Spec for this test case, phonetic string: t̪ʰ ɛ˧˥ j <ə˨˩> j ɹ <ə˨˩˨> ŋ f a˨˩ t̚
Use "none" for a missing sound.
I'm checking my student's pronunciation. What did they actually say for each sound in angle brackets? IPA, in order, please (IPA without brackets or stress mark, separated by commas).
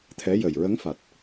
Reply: ə˨˩, ə˧˥